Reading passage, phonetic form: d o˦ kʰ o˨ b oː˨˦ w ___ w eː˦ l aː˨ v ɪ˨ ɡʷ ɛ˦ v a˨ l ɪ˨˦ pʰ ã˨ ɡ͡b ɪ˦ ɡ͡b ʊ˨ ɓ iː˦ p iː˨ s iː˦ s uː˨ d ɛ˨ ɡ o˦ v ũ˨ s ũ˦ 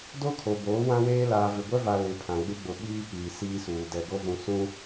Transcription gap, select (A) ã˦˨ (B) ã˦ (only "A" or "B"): B